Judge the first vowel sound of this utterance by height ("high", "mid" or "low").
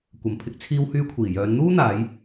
low